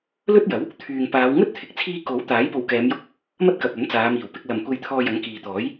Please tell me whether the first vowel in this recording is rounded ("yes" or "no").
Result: yes